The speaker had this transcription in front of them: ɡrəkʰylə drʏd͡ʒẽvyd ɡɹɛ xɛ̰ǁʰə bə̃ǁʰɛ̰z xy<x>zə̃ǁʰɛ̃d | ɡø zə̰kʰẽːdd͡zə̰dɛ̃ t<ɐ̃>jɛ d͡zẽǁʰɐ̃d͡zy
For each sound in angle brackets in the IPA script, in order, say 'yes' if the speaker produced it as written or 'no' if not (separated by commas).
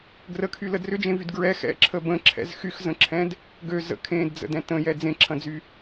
yes, no